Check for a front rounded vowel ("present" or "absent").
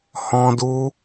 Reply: absent